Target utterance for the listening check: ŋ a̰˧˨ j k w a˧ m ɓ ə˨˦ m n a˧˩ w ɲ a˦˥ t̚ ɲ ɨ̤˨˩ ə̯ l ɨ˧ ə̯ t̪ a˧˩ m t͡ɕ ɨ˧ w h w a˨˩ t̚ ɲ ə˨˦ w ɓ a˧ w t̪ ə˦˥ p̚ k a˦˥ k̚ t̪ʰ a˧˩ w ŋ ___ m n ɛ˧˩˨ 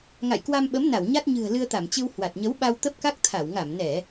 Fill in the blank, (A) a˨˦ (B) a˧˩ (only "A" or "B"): B